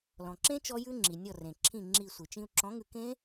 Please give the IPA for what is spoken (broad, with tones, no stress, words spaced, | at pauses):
lɔ̃˩ǁẽ˦˥ t͡ʃɔ˦˥jʉ˦˥ŋ͡ǁi˩ nʲɔ˧˩rẽ˩ǁʰĩ˧˩ ŋ͡ǁi˧˩ sʷi˩t͡ʃĩ˧u̯ ǁɔ̃˨˥ŋʉ˧kẽ˦˥